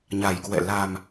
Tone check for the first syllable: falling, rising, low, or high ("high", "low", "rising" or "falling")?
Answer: low